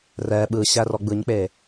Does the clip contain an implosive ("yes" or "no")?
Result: yes